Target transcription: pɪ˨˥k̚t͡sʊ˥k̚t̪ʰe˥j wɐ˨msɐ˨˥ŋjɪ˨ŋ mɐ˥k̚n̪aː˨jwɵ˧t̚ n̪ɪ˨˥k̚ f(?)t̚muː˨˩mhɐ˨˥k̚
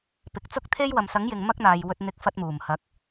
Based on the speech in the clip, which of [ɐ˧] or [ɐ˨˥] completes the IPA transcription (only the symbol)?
ɐ˧